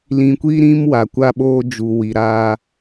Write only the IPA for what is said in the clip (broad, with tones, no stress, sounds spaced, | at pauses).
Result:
l ĩ˨ kʷ i˦ ɾ ĩ˦ m w a˨ kʷ a˦ ɓ oː˦ d͡ʒ u˨ w i˨ ɾ a˦